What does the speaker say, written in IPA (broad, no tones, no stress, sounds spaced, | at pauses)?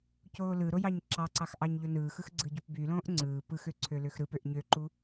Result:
c oː l ɯ ɾ o j ɑ ɲ ǁ ɑ ǀ ɑ x ʔ ɑ ɲ ʎ o n ɯː x ɯ x ɡ͡ǀ ɯ ɟ u p b y l õː ʔ ŋ͡ǀ ɯː p ɯ x ø ǀʰ ø l ø x ɾ ɯ p ø ʔ ɲ ø ǃ u